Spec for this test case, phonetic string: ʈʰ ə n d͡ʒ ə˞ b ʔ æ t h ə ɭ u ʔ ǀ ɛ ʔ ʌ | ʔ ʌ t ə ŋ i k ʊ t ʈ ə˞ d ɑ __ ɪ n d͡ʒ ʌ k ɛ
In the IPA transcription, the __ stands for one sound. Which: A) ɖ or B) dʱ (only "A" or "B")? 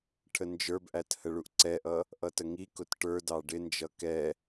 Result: A